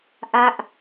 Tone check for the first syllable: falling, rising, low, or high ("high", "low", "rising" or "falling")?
falling